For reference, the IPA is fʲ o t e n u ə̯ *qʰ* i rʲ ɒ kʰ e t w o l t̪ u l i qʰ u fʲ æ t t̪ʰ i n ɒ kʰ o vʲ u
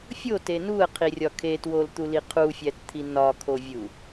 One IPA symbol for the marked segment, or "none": qʰ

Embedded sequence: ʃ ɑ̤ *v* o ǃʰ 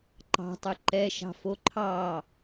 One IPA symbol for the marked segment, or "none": f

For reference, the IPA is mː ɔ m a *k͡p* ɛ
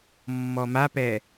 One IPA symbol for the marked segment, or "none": p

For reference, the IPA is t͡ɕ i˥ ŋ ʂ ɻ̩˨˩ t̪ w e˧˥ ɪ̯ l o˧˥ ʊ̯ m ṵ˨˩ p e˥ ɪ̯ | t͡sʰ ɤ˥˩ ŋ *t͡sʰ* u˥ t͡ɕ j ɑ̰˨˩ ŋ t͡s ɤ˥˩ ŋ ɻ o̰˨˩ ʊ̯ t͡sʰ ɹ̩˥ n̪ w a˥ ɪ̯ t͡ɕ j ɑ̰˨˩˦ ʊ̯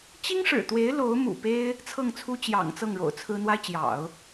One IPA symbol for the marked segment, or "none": t͡sʰ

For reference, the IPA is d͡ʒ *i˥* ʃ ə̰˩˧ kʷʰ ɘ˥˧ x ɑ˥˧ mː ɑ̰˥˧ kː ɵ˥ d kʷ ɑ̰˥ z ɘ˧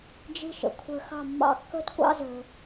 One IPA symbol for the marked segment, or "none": i˥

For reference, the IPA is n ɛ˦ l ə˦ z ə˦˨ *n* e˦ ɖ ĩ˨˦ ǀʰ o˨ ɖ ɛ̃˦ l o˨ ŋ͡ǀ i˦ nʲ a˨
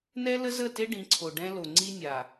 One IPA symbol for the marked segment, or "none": t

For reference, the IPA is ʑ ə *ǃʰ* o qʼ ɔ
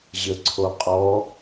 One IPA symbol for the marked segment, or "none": ǀʰ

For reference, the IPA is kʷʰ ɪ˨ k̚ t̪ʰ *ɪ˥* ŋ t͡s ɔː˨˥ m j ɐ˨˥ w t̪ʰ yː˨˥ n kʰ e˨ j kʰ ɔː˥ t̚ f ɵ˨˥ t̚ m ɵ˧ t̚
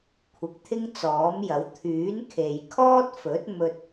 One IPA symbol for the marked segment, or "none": ɪ˥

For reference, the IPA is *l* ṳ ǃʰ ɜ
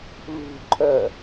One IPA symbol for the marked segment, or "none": l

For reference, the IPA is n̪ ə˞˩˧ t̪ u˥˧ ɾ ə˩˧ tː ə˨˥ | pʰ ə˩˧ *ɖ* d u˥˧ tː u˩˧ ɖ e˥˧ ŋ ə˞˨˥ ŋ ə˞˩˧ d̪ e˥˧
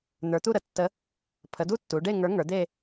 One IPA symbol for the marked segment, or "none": none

